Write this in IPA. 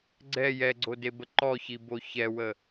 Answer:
ɡ͡ǀ ɛ j ɛ ɡ͡ǀ o d e b ə ǃ ɔ ç i b o ç ɛ w ə

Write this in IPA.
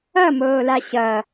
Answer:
ʌ m oː l a ɕ ʌ

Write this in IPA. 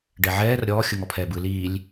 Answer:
ɖ ɛ ʕ ɛː r ɾʲ ɔː xʲ ɯ ŋ ɔ pʰ ɛː b ɯ l iː lʲ

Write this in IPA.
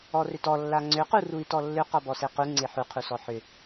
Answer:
ɔ r ʏ t ɔ lː a ŋ͡ǀ ʏ q u r u i̯ t ɔ lː ʏ q ɔ b ɔ s e q u ŋ͡ǀ e ħ u qʰ u s ɔ ħ ʏ

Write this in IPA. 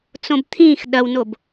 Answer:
t͡s õ b t̪ʰ ĩː x ɗ ɐ w n o b

